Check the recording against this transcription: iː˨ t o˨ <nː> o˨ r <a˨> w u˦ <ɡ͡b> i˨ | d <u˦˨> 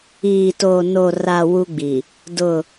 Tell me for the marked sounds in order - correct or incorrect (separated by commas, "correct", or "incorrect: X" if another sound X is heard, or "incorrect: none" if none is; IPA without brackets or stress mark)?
incorrect: n, correct, correct, incorrect: ʊ˦˨